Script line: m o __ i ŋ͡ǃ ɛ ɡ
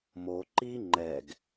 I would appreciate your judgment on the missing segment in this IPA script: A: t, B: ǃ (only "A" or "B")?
B